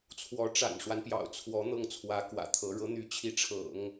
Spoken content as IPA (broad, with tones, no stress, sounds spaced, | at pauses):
t͡sʰ w ɔ˧˥ ʈ͡ʂ a̰˨˩ n ʂ w a˦ n p j ɑ̰˨˩ ʊ̯ t͡sʰ w ɔ˧˥ n̪ ɤ˥˩ ŋ t͡sʰ w ä˧˥ k w ä̰˨˩ t̪ʰ ɤ˧˥ ɻ ɤ˧˥ n̪ y˧˥ t͡ɕʰ i˧˥ ʈ͡ʂʰ ɤ̰˨˩˦ ŋ